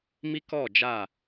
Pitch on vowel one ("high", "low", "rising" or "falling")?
high